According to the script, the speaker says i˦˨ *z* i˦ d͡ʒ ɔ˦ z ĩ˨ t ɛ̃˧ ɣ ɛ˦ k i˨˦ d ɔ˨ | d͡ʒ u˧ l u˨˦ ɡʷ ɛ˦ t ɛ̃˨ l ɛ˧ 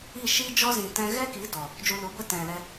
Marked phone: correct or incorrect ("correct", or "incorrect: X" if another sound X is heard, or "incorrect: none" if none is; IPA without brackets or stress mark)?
incorrect: ʃ